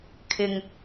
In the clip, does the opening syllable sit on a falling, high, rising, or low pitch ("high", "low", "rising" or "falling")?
low